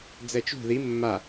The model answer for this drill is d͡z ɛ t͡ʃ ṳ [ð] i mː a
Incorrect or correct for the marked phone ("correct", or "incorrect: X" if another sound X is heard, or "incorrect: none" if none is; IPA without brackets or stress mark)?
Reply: correct